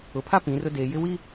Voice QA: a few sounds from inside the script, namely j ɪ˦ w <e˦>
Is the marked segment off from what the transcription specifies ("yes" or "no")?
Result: yes